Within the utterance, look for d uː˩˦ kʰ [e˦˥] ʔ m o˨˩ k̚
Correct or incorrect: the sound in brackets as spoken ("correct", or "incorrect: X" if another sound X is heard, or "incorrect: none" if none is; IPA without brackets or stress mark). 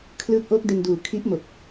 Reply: incorrect: i˦˥